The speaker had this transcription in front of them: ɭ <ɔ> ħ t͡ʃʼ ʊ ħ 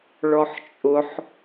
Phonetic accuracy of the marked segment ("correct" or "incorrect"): correct